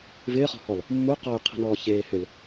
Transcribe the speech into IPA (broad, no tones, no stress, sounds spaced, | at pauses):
v ɪː χ ɔ̤ h ɔ l | mː u q ɔ y̯ qʰ i̤ n ɔː ç eː h ʏ l